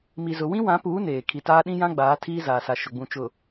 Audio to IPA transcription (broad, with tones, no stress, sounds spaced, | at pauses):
m i˨ z ʊ˨ w ĩ˦ w ã˨˦ p uː˨˦ n eː˨ kʰ i˨ t aː˦ ɗ ĩ˦ j ã˦ ɡ͡b aː˨˦ tʰ iː˦ z aː˨ s a˨ ʃ ʊ˨ ɡ͡b ũ˨ t͡ʃ ʊ˨